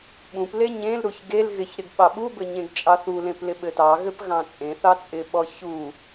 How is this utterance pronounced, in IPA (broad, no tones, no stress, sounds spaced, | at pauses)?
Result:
ɓ ũ p l e ɲ ẽ l ɾ u ç ɡ e l ɣ ɪ ç ɾ ɪ ɡ ɓ ɑ ɓ u b ɘ ɲ ẽ ɡ t͡ʃʼ ɑ θ u l ẽ p l ɪ ɓ ɘ t ɑ ɣ ɘ p ɣ ɑ̃ t͡sʼ ẽ θ ɑ t͡sʼ ɪ ɓ ɔ ç u